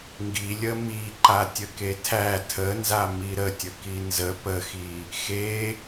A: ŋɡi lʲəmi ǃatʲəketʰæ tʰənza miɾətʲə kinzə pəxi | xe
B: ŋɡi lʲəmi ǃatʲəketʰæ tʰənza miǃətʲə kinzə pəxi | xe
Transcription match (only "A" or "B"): A